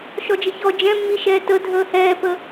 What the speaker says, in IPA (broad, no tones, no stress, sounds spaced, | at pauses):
ʃ ɔ d͡ʒ ə ç ɔ d͡ʒ ɛ̃ mː i ʃ ɛː t ə dʱ əː h ɛː p ə